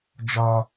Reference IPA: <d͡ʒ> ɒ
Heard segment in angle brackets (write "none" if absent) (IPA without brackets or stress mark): d͡ʒ